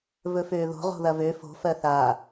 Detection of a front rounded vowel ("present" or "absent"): present